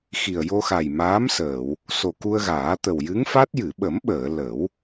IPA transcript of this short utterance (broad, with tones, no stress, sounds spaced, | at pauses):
x i˨˩ ə̯ j o˧ x a˨˩ j m aː˧˥ m s əː˨˩˨ w | s o˨˩ k u˧ ə̯ ɣ aː˨˩˦ t̪ ə˨˩ w j ɨ˧˥ ŋ f a˦˥ t̚ j ɨ˨˩˨ ɓ ə˨˩˦ m ɓ əː˨˩˨ l ə˨˩˦ w